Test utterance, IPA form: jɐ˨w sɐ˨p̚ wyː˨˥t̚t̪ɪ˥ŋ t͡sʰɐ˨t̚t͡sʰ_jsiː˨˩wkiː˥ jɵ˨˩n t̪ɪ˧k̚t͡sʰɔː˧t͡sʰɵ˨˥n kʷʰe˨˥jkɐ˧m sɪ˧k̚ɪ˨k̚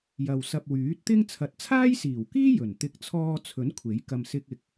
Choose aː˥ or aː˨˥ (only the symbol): aː˥